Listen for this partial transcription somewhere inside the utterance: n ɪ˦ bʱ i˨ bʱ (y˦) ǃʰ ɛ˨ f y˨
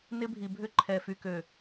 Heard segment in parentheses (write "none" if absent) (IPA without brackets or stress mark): ʏ˦